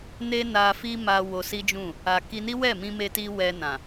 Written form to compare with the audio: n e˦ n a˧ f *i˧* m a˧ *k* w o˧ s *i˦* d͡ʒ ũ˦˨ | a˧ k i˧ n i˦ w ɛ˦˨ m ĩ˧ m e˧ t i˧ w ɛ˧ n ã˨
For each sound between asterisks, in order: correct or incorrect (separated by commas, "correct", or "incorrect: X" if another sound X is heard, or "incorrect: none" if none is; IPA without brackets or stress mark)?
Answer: incorrect: i˦, incorrect: none, correct